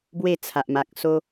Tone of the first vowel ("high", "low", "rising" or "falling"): falling